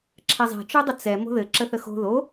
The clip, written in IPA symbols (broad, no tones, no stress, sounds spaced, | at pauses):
ǁʰ ɛ zˤ ɛ̤ t͡ʃ o dˤ ə t͡s ɛ m o̤ ð ɘ ǁ ə θ ə x o̤ ð o